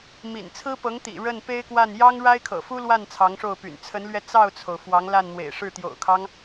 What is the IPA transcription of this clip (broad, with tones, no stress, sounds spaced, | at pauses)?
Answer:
m ḭ˨˩ n t͡sʰ ɹ̩˥ p ɤ˧˥ ŋ t̪ ḭ˨˩ ɻ ə˥˩ n p e˥ ɪ̯ k w a˥˩ n j ɑ˥ ŋ ɻ a˥ ɪ̯ kʰ ɤ̰˨˩ f u˥ l w a˥˩ n t͡sʰ ɑ˧˥ ŋ ʂ o˥˩ ʊ̯ p y̰˨˩ n t͡sʰ ə˧˥ n l ɥ ɛ˧ t͡s ɑ˥˩ ʊ̯ t͡sʰ o˩ ʊ̯ f w ɑ˧˥ ŋ l a˥˩ n n̪ w ḛ˨˩ ɪ̯ ʂ ɻ̩˥˩ t̪ j o̰˨˩ ʊ̯ kʰ ɑ˦ ŋ